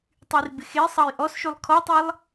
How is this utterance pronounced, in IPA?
tˤ y r b ɪ x e sˤ ɑ j ʔ ɔ s ʃ y lˠ kʰ ɔ tˤ e lˠ

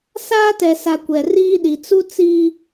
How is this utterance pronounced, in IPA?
s aː˦ t ɛ˨ s a˨ kʷ ɛ˨ r iː˦ ɗ i˨ t͡s u˦ t͡s i˦

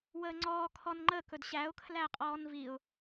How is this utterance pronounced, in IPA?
w əː ŋ͡ǀ ɔː kʰ ɔ n ŋ͡ǃ ə k ɵ d ɕ æ ʊ̯ kʰ l æ qʼ ɔː n v i ʊ̯

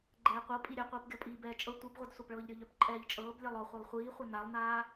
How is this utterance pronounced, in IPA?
ɡ͡ǃ ɛː qʷ ɤ pʼ i ɾʲ œ qʷ iː p ɡʲ ɔ pʼ iː b ɛː t͡ʃʼ ɤ tʷ i b ʁʷ ɛ d sʷ a p ɭ ɤː ʎ ɾʲ ɤ ʎ œ p ǃʼ ɛː ʎ t͡ʃʼ ɤː b lʲ ɛ lˠ ɔ χʷ a lˠ χʷ iː χʷ œ n a lˠ n aː

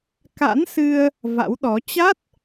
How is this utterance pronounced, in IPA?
k a̰˧˥ n s ɨ˧ ə̯ | v a̰˧˥ w ɗ ɔ˨˦ t͡ɕ a˦˥ t̚

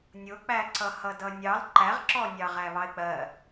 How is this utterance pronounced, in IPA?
nʲ ʊ k͡p æ ǀ ʌ h ʌ d ʌ nʲ ɑ l ǃ æ ʁ ǁ ɔ nʲ ɑ ʁ æ β ɑ ɪ̯ k͡p ɜ

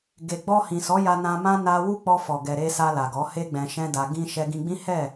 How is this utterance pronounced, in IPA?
ɡ e˨ ɡ͡b ɔ˧ h ĩ˨ s ɔ˨˦ j a˧ n ã˧ m ã˦ n a˧ w u˦ k͡p ɔ˧ f ɔ˨ ɡ ɛ˨ ɾ e˧ s a˧ l a˨ ɡ ɔ˨˦ h e˦ ɡ͡b ɛ̃˧ ʃ ɛ̃˦ d a˧ ɡ ĩ˧ ʃ ɛ˧ ɡ ĩ˧ ɡ͡b ĩ˦ h ɛ˦˨

